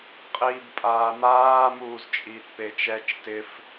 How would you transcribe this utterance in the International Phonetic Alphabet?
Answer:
qʼ iː b pʼ aː m aː m uː z t͡ʃʼ iː t p e t͡ʃ ɛ t͡ʃ t ɪ f

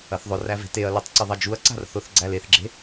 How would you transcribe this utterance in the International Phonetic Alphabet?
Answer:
ɐ θ ðˤ ʊ r æ v e̤ t e ɐ̯ l e tˤ ǀ ɪ ðˤ ɐ d͡ʒ u ɐ̯ ǀ a̤ r θ ʊ θ ɡ͡ǀ æ l e θ ɡ͡ǁ e̤

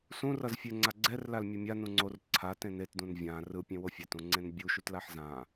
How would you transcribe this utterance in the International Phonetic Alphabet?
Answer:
s ũ r ʌ z fʲ e ŋ͡ǀ a ɡ͡ǀ ɛ r l a l mʲ ɯ mʲ a n ũ ŋ͡ǀ o r ǀʰ a t ẽ n e t d ũ n vʲ ã r ɯ pʲ ẽ w o fʲ ɛ t ũ ŋ͡ǀ ẽ n bʲ u ʃ u t l a ħ z ã

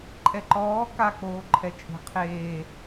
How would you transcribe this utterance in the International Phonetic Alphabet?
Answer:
ǃʼ ɛ ǃ ɔː k a k͡p oː ǃʰ ɛ t͡ʃʼ e̤ qʰ eː

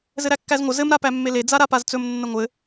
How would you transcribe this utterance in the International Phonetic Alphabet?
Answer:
z ɘ ɾ æ kː æ z ŋʷ ə z ɘ m ɾ a p æ mː e l e d͡z a ɾ a p a z t͡s ɵ m nː ə ŋʷ ɘ

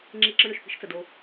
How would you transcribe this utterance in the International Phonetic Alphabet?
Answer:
ŋ͡ǁ i˧ ǁ ə˧ ɳ ʏ˨ ʃ p i̤˧ ʃ t͡s ə˨ d o˧

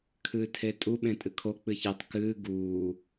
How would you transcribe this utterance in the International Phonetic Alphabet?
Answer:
kʰ ɨː tʰ e tʼ u ɓ ẽ tʼ ɨ kʰ o k͡p ɨ ç e tˤ k ɨː ɡ uː

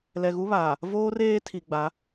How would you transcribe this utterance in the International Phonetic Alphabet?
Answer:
l ɛ˨ ɣ u˦ β aː˨ | v oː˦ r eː˦ tʰ i˨ ɡ͡b a˨˦

